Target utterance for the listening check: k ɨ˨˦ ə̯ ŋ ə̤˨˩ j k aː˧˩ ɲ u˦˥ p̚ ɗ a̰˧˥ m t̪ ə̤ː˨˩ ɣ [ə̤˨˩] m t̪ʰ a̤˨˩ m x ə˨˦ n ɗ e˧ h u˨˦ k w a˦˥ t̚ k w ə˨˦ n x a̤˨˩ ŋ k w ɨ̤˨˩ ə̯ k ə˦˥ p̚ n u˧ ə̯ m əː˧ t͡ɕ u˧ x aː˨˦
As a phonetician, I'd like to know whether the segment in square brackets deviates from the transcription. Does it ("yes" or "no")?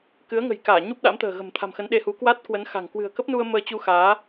no